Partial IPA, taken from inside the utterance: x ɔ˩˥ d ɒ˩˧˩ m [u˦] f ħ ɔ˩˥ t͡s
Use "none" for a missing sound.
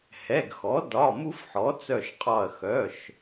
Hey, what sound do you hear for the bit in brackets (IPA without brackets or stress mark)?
u˦